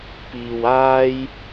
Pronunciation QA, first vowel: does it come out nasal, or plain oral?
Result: oral